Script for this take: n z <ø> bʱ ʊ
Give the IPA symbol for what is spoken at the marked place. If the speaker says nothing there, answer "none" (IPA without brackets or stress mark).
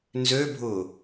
ø